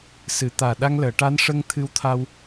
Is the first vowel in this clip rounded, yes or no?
no